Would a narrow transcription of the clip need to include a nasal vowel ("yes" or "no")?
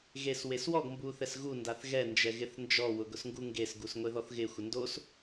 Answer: no